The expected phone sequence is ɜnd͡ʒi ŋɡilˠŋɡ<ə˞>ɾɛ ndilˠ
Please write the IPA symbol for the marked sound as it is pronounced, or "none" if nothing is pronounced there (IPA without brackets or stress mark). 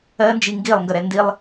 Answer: ə